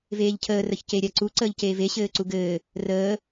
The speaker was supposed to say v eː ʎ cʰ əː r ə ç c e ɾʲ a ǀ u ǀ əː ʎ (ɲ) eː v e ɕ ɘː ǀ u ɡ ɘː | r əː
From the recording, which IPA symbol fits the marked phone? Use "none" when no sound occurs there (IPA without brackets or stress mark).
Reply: c